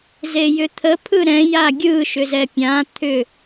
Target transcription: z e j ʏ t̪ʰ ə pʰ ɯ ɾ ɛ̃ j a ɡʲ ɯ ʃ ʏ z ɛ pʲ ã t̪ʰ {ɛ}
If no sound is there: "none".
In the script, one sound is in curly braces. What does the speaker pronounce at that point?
ʏ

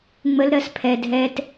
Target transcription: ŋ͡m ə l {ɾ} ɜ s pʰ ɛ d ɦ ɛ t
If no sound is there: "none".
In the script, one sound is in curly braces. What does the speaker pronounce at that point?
ɾ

